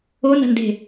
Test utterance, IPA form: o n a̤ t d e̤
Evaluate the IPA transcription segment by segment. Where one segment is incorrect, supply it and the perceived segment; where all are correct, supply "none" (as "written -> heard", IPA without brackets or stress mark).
t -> n